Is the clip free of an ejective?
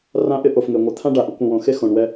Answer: yes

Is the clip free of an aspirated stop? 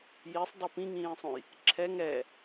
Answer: no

